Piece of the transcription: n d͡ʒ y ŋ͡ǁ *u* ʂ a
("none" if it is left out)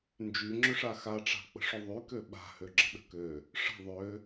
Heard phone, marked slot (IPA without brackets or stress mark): ʏ